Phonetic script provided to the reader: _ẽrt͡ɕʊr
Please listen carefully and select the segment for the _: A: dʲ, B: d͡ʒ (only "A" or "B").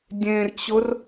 A